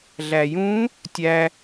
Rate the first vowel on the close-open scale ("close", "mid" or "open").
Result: open